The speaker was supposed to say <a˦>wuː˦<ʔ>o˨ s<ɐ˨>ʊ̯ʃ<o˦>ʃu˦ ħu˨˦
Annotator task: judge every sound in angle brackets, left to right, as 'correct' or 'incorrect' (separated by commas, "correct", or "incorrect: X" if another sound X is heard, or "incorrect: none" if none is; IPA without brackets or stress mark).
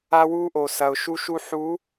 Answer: correct, correct, correct, incorrect: u˦